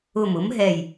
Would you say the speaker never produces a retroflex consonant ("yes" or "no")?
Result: yes